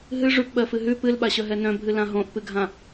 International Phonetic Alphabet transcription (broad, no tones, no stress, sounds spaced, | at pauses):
ɦ ɨ ʐ ʉ p ɓ ɜ f ɨ ɦ ʉ p ɨ l ɓ a ɕ œ ɦ ɛ n œ̃ bʱ ɨ l ã ɦ õ ʔ p ɨ ɡʱ ã